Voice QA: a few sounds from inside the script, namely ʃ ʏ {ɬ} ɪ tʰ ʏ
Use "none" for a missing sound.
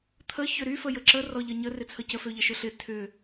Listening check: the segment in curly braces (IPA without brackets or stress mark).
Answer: ɬ